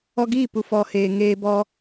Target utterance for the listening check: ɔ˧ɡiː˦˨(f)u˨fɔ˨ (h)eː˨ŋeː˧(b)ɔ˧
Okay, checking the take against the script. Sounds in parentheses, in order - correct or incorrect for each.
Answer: incorrect, correct, correct

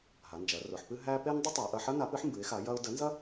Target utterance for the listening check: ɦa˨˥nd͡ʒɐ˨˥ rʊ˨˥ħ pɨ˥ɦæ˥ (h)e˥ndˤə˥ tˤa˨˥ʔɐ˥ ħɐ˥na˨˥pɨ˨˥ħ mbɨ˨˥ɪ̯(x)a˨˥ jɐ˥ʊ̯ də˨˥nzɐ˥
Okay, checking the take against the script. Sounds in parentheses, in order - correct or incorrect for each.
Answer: incorrect, correct

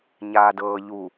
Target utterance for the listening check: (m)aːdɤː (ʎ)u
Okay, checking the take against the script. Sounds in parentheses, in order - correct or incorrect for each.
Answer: incorrect, correct

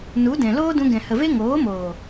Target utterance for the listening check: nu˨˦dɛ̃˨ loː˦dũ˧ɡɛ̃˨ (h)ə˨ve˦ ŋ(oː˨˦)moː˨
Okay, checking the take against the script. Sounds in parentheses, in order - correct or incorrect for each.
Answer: correct, correct

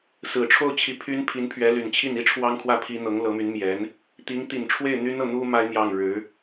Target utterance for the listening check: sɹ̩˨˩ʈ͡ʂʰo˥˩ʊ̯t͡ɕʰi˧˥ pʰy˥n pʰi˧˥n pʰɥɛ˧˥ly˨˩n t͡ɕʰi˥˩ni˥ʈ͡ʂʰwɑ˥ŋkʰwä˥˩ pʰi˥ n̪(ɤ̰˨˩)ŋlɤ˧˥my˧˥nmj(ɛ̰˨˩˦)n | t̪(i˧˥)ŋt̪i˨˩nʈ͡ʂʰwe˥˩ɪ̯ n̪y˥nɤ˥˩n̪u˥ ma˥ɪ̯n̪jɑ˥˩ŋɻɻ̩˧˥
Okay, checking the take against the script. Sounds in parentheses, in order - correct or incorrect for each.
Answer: incorrect, incorrect, correct

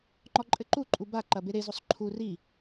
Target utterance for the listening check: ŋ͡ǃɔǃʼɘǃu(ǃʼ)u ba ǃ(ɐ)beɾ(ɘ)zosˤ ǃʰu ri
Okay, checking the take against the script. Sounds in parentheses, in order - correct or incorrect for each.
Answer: correct, correct, incorrect

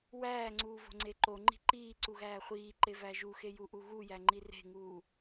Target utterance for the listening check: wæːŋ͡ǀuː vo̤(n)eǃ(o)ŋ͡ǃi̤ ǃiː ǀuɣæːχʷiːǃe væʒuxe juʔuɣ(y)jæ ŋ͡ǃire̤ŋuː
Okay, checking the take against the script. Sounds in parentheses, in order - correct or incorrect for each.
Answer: incorrect, correct, incorrect

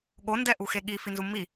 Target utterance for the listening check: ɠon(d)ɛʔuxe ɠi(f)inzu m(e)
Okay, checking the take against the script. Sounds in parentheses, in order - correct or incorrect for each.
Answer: correct, correct, incorrect

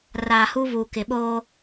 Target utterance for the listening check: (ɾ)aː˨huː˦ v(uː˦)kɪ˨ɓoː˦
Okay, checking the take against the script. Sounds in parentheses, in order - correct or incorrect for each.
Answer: incorrect, incorrect

